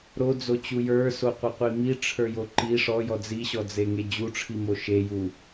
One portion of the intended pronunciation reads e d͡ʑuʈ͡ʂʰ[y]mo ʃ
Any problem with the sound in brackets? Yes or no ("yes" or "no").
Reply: yes